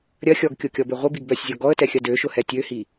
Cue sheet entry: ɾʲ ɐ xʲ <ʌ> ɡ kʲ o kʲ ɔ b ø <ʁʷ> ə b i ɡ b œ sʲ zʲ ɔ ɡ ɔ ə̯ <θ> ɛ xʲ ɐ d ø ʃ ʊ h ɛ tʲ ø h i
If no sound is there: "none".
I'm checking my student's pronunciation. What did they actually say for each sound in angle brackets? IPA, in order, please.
ɔ, ʁʷ, t

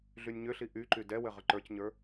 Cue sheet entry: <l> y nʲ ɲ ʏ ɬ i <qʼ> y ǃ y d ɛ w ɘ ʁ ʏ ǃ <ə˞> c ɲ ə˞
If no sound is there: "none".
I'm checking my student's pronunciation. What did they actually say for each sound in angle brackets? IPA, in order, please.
ɮ, ʔ, ə˞

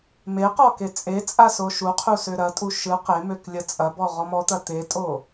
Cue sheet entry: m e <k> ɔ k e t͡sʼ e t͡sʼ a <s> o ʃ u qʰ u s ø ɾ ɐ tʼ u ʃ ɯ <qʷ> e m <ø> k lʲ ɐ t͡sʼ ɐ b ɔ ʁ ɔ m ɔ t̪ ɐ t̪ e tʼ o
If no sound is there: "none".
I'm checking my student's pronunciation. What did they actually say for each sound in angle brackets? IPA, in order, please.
q, s, q, ø

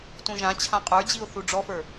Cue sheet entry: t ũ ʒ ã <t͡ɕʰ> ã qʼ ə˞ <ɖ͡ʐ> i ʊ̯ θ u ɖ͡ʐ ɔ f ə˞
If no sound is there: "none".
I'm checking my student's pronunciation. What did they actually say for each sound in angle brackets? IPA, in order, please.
t͡ɕʰ, d͡ʑ

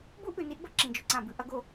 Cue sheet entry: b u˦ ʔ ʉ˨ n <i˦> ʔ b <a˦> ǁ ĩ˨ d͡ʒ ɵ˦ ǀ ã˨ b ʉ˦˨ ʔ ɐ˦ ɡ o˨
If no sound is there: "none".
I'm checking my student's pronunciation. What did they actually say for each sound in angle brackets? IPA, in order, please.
i˦, ɐ˦

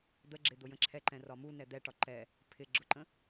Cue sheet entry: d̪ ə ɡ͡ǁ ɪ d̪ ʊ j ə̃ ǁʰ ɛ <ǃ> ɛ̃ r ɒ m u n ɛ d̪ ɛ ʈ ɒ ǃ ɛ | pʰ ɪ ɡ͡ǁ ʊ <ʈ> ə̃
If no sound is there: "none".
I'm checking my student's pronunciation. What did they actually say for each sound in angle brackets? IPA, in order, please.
ǃ, ǃ

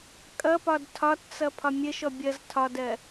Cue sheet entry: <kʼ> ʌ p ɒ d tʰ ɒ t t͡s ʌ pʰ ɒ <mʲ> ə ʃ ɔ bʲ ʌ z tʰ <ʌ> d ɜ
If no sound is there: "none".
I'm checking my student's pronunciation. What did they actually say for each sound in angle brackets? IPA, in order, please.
kʼ, mʲ, ɒ

